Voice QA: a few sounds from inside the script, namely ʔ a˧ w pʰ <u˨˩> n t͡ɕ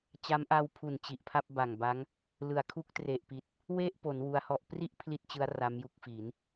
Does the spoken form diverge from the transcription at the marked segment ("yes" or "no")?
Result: no